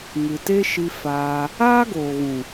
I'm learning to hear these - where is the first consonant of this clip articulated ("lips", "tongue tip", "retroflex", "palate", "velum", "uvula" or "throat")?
velum